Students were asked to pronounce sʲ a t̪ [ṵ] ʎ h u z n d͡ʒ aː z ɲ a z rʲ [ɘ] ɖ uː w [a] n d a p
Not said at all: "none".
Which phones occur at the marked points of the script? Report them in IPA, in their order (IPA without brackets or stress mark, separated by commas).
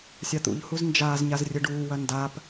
ṵ, ɘ, ɐ